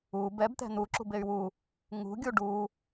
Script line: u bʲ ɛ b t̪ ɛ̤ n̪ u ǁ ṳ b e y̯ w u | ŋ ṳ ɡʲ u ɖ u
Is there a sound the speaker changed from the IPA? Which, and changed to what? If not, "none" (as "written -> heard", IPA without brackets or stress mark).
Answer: bʲ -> b